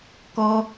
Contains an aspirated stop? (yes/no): no